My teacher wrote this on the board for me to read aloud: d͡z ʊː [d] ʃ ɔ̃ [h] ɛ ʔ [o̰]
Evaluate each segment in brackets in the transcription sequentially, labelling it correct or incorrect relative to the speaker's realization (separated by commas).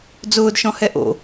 correct, correct, correct